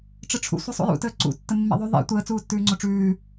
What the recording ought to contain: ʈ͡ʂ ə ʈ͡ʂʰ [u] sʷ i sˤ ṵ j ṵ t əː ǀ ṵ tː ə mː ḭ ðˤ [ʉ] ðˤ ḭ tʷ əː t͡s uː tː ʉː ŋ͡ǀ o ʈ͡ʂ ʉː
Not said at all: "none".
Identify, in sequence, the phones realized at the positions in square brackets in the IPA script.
ṵ, ʉ

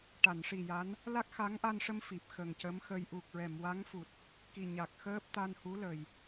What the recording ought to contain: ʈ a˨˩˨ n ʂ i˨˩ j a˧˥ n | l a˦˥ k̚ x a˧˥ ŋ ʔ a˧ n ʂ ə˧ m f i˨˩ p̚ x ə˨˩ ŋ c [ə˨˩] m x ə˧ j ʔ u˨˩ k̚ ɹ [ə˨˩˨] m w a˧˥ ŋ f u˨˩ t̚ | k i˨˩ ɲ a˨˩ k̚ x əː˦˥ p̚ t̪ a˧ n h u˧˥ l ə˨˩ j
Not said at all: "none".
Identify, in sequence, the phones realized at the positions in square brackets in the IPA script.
ə˧˥, ɛ˨˩˨

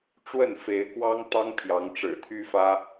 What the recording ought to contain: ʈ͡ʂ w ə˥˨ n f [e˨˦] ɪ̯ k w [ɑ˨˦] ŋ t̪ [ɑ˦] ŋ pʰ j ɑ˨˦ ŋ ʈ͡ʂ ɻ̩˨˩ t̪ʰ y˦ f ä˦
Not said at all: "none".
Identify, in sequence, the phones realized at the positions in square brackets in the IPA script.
e˨˦, ɑ˦, ɑ˦

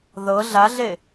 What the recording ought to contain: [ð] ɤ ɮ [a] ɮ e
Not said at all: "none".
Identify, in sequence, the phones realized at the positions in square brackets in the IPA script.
ð, a

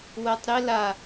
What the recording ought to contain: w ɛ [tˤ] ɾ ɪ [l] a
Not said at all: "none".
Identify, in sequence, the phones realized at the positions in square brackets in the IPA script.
tˤ, l

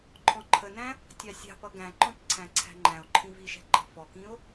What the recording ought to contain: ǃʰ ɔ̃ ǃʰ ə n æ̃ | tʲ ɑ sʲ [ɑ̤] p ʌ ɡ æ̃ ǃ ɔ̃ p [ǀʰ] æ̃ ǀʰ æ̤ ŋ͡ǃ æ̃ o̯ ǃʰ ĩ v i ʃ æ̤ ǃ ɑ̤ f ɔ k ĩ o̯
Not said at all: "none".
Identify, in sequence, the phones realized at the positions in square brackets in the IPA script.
ɑ̤, ǀʰ

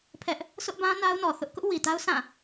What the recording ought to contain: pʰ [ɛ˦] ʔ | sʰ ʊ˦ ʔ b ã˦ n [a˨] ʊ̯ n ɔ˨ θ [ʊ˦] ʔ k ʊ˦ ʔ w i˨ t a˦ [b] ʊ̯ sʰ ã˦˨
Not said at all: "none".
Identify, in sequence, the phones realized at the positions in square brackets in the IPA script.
ɛ˦, a˦, ʊ˦, none

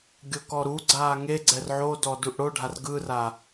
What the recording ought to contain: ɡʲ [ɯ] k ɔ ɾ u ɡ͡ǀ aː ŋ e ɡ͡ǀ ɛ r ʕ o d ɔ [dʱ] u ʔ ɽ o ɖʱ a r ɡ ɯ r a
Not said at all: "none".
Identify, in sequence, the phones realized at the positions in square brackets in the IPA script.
ɤ, d

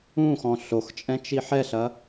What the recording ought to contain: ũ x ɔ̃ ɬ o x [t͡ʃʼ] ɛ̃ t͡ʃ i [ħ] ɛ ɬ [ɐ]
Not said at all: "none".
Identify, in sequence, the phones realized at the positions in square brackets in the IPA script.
t͡ʃʼ, ħ, ɐ

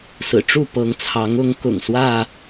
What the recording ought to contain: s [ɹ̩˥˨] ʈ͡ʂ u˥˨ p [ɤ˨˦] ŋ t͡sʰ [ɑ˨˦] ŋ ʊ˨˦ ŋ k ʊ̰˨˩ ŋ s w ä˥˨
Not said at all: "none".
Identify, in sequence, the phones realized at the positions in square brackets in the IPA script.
ɹ̩˨˩, ɤ˨˦, ɑ˨˦

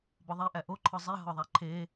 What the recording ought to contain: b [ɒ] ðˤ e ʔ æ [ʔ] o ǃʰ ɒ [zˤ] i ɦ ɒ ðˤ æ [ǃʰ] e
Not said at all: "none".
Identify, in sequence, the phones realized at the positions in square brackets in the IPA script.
ɒ, ʔ, zˤ, ǃʰ

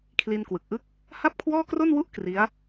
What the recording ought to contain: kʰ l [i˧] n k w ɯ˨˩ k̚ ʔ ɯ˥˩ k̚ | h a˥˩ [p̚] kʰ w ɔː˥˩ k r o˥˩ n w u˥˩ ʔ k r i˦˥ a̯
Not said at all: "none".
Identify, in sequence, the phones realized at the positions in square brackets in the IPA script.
i˧, p̚

